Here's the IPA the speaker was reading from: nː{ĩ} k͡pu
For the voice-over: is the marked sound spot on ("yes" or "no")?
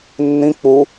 yes